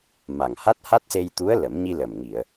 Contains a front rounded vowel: no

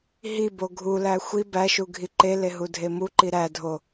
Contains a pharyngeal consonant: no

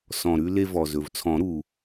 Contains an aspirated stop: yes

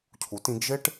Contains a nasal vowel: yes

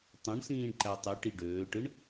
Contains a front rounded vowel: yes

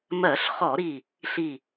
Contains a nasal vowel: no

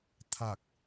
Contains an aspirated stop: yes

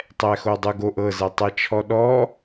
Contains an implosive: yes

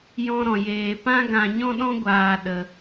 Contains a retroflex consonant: no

